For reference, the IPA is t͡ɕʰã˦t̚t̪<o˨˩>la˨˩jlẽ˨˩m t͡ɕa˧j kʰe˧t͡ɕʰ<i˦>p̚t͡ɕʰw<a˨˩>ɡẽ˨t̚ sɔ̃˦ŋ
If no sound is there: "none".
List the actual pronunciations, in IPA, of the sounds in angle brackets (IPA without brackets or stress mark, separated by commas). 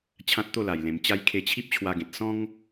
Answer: o˥˧, i˦, a˧